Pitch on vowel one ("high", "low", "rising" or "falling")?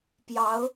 rising